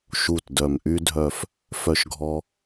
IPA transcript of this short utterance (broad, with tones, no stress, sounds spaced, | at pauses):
ʃ u˨˩ t d œ˨˩ m ʔ y˧ dʱ œ˨˩ f | f œ˧ ʃ ɡʱ ɔ˧